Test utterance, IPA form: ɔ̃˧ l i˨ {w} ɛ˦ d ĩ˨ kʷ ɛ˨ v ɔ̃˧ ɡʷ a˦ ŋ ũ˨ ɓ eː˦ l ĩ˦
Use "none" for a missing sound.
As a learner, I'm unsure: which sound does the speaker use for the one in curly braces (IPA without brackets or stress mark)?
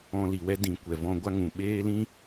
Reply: w